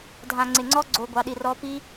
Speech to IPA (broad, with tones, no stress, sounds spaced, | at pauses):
dʱ ã˨ ŋ͡ǀ ɪ˨ ŋ͡ǀ ɔ˦ ɡ͡ǀ o˨ ɡʷ ɑ˨˦ ɗ i˨ r ɔ˦ p i˦